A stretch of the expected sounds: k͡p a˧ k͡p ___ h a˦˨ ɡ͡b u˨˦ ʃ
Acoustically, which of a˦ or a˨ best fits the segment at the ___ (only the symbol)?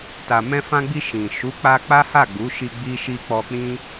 a˦